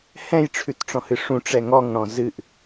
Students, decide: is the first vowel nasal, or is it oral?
nasal